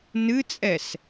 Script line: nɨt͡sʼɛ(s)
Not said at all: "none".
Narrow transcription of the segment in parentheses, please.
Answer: s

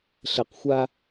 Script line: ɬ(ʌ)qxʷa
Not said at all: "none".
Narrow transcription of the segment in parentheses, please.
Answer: ə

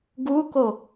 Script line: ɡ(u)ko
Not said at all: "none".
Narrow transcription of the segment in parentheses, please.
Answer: u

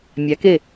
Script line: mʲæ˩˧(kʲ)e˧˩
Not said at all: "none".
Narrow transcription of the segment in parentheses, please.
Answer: k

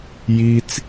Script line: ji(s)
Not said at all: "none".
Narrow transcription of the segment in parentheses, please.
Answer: t͡s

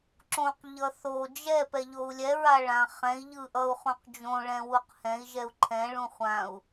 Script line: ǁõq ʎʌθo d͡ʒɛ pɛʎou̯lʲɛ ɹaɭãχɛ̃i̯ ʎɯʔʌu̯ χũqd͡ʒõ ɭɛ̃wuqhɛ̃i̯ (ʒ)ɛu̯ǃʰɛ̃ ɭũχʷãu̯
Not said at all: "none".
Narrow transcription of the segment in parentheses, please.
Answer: ʒ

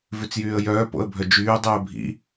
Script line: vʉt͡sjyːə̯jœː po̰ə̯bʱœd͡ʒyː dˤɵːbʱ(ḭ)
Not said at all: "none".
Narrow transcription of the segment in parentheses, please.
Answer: ḭ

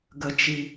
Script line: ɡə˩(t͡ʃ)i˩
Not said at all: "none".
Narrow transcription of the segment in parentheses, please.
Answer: t͡ʃ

